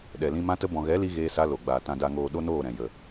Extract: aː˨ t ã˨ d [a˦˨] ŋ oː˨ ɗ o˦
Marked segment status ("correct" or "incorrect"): incorrect